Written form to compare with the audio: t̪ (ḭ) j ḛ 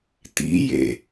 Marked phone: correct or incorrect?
correct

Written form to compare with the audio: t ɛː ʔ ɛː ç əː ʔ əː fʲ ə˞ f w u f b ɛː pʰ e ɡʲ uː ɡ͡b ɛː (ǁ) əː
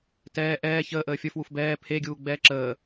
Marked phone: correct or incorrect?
correct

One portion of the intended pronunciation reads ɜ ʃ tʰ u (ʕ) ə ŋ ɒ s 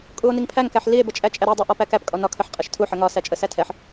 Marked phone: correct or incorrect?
incorrect: ħ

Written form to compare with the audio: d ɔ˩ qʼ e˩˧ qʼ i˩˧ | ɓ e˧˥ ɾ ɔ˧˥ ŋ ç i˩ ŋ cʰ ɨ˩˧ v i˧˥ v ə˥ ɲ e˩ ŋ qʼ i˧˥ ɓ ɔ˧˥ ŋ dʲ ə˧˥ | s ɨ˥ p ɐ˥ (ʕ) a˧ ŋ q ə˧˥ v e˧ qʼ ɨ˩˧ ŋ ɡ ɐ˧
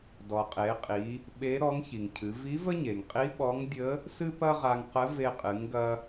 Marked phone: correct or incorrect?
incorrect: ʁ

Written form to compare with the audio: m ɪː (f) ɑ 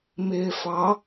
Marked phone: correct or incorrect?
correct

